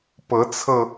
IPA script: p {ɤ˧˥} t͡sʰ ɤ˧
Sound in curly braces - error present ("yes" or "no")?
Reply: no